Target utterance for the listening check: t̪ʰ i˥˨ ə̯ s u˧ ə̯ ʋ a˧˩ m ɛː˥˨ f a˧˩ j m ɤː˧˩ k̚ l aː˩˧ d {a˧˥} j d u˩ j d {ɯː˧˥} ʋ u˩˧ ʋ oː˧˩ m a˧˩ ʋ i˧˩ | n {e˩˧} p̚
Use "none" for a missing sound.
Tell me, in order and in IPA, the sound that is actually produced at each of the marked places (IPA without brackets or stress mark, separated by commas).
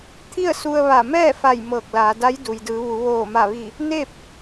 a˧˥, ɯː˩˧, e˥˨